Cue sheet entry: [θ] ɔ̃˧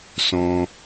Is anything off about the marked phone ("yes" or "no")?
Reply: yes